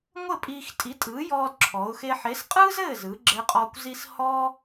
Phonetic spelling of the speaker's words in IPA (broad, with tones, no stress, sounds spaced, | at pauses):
ŋʷ ɘ˥˨ pʼ iː˧ x tʼ i˨˥ tʼ ɯː˨˥ j ɔː˧ d ǁʰ ɔ˩˧ ʊ̯ x e˧ ħ e˨˥ s qʼ ɯː˥ z ɘː˥˨ z ɯː˩˧ ɡ͡ǁ ɘː˧ qʼ ɔː˧ kʷ z i˧ s h ɔː˥